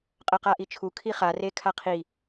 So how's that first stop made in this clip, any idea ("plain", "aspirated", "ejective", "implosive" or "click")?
ejective